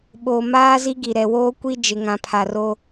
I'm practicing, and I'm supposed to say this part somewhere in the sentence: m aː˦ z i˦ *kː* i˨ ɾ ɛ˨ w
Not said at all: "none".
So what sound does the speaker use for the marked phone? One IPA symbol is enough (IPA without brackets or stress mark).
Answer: ɡ